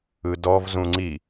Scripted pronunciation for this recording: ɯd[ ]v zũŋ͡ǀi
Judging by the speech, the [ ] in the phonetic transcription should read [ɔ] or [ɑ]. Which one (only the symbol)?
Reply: ɔ